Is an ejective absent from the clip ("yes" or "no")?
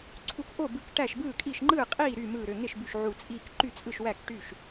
no